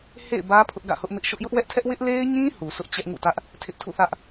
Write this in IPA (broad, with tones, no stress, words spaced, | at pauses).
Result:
hḛ˦˨ɪ̯bä˦ pʰʊ˦ʔɡä̰˦˨hʊ˦ʔmɪ˦ʔ ʃʊ˦ʔ jʊ˦ʔwɛ˦ʔtʰɛ˦ʔ wɪ˦ʔle˦ɪ̯ɲĩ˦ hu˨sʊ˦ʔ t͡ɕɛ˦ʔŋṵ˦˨tä˦ʔ | tʰɪ˦ʔtʰṵ˦˨θä˦ʔ